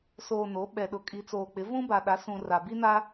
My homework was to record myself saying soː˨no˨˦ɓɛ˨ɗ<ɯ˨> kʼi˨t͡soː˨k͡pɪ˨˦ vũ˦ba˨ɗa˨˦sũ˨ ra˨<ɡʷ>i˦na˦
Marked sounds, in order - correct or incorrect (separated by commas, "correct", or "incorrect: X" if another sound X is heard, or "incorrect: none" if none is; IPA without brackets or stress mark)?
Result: incorrect: ʊ˨, incorrect: b